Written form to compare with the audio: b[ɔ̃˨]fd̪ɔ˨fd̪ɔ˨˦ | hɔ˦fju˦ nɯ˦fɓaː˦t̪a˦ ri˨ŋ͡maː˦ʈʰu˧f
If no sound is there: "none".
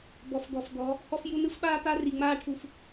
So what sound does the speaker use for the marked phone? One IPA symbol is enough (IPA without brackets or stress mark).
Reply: ɔ˨